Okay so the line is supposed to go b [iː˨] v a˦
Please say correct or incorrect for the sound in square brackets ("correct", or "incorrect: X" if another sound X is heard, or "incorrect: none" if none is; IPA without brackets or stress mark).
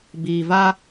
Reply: correct